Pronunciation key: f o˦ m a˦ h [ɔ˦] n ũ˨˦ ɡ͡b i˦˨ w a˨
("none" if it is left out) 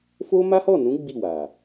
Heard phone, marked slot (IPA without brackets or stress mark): ɔ˦˨